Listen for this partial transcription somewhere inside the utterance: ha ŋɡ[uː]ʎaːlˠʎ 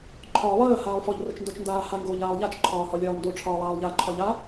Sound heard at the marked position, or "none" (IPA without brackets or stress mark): oː